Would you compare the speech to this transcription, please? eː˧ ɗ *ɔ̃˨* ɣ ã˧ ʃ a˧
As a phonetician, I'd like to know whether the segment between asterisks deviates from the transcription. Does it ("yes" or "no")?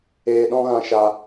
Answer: yes